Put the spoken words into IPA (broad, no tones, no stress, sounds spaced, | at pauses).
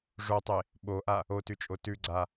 ʐ o tˤ e | ɓ o ʔ a | o t ʉ t͡ʃʼ o t ʉ ɡ͡ǀ a